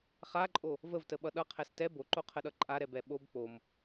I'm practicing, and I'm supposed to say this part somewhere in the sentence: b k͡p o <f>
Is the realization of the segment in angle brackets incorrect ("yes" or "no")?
yes